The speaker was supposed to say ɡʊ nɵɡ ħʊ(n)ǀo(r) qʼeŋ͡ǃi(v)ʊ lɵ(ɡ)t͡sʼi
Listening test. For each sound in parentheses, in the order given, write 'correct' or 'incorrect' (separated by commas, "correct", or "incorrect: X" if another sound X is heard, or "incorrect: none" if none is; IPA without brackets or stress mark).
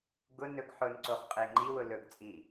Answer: correct, incorrect: χ, incorrect: w, correct